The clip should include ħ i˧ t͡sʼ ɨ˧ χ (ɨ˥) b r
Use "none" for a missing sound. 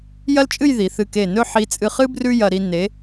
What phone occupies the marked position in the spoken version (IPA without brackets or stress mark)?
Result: ɨ˥